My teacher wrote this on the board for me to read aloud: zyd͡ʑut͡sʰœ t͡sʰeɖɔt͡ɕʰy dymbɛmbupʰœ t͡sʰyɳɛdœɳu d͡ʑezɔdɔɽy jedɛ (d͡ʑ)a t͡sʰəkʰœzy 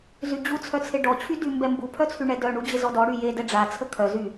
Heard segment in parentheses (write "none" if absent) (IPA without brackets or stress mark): ɖ͡ʐ